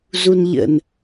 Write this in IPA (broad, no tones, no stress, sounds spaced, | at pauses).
z u n ʎ ə̰ n